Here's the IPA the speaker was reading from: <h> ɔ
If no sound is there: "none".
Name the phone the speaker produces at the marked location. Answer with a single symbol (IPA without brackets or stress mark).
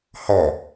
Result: h